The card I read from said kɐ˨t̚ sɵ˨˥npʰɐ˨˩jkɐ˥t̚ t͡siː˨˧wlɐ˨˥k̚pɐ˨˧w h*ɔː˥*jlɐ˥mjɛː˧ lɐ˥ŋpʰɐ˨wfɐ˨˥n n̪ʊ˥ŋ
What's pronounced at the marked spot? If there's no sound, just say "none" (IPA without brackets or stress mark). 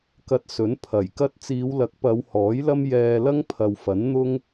ɔː˨˥